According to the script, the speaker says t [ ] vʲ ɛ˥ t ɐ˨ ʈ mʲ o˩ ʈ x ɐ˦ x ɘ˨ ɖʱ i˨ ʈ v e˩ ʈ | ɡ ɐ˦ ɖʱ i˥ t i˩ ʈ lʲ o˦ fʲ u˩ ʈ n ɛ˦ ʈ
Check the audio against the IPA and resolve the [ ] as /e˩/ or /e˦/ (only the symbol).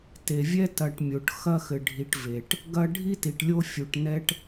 e˩